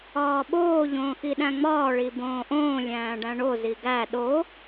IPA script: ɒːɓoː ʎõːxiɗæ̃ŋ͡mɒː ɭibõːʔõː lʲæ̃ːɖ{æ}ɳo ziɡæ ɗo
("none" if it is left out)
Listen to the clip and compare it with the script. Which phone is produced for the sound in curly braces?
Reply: æ̃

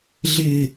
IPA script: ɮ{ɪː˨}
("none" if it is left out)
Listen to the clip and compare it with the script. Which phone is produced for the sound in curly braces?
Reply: ɪː˨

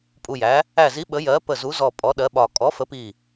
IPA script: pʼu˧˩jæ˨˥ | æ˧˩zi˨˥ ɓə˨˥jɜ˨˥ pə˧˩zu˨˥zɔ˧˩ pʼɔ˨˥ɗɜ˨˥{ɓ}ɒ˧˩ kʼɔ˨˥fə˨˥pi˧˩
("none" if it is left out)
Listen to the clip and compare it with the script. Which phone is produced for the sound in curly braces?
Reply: ɓ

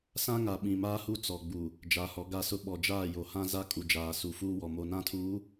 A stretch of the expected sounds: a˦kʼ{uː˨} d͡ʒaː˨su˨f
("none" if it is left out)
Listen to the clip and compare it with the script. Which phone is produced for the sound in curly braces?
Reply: u˨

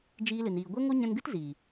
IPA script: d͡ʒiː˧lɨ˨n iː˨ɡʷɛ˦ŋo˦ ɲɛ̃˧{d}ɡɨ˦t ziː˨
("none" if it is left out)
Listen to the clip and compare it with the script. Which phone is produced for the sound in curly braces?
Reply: n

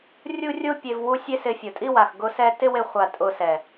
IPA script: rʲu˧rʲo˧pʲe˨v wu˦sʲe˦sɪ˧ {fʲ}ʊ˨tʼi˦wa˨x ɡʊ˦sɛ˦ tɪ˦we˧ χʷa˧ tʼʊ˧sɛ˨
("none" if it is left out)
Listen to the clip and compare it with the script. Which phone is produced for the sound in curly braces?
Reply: fʲ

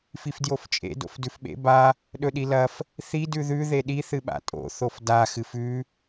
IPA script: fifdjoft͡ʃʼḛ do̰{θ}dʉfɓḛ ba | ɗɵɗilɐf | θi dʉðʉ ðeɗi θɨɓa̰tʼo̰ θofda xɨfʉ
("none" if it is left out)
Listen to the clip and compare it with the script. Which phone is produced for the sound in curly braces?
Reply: f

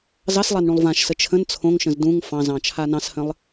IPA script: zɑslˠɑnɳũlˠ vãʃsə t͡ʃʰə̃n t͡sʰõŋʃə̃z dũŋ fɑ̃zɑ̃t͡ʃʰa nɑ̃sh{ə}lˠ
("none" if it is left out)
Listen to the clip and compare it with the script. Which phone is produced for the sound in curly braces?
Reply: ə̃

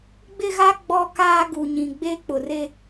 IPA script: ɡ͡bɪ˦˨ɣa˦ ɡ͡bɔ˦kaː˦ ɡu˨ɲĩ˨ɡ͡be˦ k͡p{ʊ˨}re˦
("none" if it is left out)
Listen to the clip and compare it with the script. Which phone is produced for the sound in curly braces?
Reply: ʊ˨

